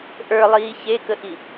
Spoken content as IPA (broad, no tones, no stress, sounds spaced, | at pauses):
ʔ ə˞ lˠ iː ç e k ə ʔ i